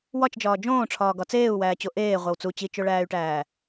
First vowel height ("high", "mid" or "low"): low